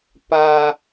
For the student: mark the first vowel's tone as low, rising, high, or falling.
high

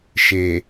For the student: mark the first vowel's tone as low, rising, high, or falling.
low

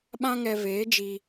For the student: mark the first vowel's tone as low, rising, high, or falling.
high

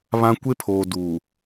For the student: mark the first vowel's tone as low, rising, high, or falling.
high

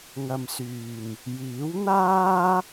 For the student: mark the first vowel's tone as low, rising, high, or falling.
low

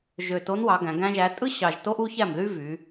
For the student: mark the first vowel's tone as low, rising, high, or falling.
low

